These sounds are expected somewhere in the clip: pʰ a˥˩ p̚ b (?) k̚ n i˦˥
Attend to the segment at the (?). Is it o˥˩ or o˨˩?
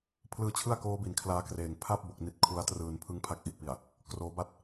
o˨˩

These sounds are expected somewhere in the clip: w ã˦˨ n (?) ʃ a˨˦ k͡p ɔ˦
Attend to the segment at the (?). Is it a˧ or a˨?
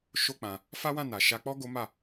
a˨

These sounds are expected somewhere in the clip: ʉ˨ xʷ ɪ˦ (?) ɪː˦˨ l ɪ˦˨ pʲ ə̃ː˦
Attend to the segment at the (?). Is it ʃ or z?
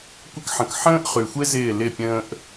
z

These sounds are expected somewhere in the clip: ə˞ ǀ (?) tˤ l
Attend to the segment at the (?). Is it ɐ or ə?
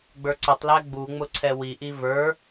ə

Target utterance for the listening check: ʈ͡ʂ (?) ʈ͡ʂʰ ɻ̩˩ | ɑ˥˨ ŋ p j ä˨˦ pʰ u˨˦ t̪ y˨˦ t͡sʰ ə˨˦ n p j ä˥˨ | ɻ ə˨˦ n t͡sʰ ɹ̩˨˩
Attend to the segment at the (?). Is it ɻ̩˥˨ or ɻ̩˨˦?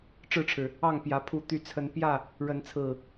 ɻ̩˥˨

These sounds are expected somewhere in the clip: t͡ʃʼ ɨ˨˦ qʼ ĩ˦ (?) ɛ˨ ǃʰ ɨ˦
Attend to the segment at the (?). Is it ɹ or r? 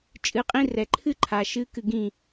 r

